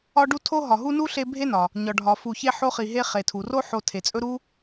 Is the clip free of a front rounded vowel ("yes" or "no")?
yes